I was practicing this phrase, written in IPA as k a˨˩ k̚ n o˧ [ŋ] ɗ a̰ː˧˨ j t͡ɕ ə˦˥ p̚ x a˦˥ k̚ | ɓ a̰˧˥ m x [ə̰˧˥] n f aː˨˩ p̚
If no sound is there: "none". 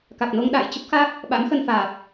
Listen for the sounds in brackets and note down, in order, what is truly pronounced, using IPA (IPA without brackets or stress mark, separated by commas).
ŋ, ə˧